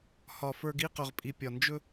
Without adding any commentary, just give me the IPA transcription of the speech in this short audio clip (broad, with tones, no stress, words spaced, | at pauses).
hɒ˨ fə˞˨ɡi˦˨ qɵ˨ʁpʼi˨ pʲɒ˨nd͡ʒɵ˦